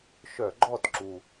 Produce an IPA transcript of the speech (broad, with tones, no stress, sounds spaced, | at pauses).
ʃ œ˧˩˧ ɡ͡ǃ ɔ˥˩ t ǁ u˨˩